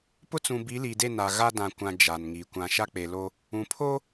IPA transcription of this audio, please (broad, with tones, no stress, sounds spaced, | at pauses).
p ʊ˦ t͡s ũ˨ b i˨˦ l iː˨ d e˦˨ n a˨ ɣ a˦ d ã˨ kʷ ã˨ d͡ʒ a˨ n ŋ i˨ kʷ ã˨ ʃ a˦ k͡p e˨ l o˦ | ũ˨ pʰ o˦